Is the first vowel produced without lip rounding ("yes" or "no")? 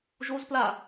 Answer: no